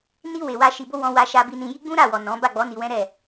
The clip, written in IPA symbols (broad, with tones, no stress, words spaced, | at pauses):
ni˧ we˨wa˧ ʃi˨bo˧ wɔ̃˧wa˧ ʃa˧bi˧nĩ˧ ji˦ɡ͡bũ˦ɾa˦˨wɔ˨ nɔ̃˨˦ ba˦˨ɡ͡bɔ˨˦ ni˧wɛ̃˦ɾɛ˦˨